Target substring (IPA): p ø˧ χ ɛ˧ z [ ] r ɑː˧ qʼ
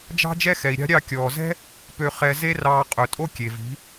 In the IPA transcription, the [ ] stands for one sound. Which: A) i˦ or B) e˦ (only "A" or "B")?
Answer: B